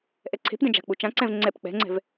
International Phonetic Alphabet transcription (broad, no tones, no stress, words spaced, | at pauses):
ʔɛǀʰe̤pdɛ̃ d͡ʒa̤k͡put͡ʃãǀɛ̃v ŋ͡ǀɛp k͡pɛ̤ŋ͡ǀɛ̤v